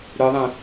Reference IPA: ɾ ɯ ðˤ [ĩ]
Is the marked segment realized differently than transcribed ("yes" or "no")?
no